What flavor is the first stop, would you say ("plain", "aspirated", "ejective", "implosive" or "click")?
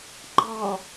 click